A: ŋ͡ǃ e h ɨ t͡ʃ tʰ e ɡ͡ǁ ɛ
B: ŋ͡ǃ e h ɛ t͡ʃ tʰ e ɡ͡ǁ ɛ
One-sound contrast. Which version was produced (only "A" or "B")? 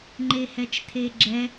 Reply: B